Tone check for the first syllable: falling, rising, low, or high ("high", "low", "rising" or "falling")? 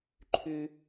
low